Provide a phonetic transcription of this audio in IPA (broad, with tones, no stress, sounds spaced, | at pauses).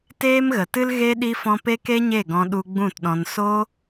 t eː˦ m ɣ ə˨ t ɨ˦ l ɣ e˦ ɗ i˧ f ɔ̃˧ p e˦ k e˦ ɲ e˦˨ ɡ ɔ̃˧ ɗ u˧ ɡ͡b ũ˦˨ t ɗ ɔ̃˧ n s o˦